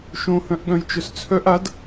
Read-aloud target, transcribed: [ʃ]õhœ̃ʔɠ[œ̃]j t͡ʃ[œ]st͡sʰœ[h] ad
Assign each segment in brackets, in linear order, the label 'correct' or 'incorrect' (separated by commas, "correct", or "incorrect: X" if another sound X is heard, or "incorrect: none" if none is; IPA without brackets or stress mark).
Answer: correct, correct, correct, incorrect: ʔ